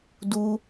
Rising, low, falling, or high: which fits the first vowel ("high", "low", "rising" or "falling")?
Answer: high